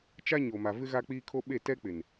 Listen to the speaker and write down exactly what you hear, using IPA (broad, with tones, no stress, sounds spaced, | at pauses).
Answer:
t͡ʃ a˦ ɲ o˨ m a˨ v ɪ˦ ɣ a˦ k͡p iː˦ kʰ o˦ ɓ e˦˨ t ɛ˦ k͡p ɪ˨ n